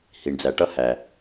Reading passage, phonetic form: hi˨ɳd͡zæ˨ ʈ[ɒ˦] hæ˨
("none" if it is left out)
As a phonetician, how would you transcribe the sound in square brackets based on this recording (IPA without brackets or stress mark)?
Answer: ʌ˦